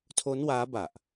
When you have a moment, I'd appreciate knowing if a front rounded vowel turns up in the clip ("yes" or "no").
no